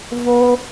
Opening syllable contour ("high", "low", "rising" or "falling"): high